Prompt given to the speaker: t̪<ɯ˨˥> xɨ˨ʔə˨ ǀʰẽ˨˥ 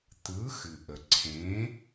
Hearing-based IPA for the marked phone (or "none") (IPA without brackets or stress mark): ɯ˨˥